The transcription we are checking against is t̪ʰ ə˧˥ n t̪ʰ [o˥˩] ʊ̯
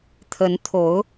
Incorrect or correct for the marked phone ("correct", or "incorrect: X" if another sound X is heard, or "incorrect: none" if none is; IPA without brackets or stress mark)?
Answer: incorrect: o˧˥